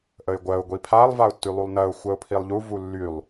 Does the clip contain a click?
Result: no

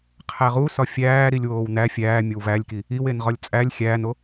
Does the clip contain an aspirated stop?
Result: yes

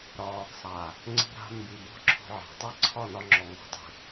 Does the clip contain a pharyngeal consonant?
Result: yes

